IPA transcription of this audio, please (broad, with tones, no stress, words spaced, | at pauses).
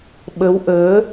ɓə˨˦wʔəː˨˦